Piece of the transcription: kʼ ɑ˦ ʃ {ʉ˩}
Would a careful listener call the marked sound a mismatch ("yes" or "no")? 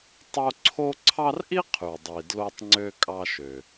yes